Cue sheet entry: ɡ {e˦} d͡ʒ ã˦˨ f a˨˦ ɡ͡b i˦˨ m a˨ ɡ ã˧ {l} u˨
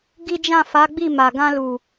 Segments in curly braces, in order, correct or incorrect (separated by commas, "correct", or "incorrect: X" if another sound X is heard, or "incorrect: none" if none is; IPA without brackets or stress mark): incorrect: i˦, correct